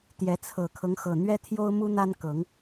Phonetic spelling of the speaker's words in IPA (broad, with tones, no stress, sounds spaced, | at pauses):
t̪ j ɛ˨˦ t͡sʰ ɤ˨˩ kʰ ɤ˦ ŋ x ɤ˨˩ n̪ ɥ ɛ˦ t̪ʰ j o˦ ʊ̯ m u˦ n̪ a˦ n k ɤ˨˦ ŋ